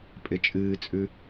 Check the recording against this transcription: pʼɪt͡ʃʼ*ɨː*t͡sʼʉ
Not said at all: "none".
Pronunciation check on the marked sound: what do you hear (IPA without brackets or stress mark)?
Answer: ɨː